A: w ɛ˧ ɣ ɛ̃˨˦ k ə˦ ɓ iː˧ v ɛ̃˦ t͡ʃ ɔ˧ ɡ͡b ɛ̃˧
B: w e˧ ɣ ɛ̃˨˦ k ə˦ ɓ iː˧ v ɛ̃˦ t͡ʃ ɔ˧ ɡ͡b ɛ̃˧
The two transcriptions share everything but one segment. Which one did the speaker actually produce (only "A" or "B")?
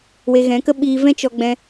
B